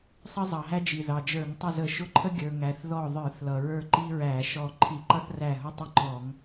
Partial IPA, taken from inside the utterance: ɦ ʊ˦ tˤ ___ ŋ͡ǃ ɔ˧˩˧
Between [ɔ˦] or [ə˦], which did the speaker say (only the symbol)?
ə˦